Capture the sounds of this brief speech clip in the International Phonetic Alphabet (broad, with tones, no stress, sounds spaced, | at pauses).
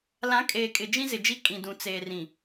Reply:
l ã˨˦ kʼ eː˨ kʼ ɪ˨ d͡ʒ ĩ˦ z ɪ˨ d͡ʒ i˦ kʼ ĩ˨ d ũ˨ t͡s eː˨ r ĩ˨